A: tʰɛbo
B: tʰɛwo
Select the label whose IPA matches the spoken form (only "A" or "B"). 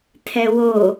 B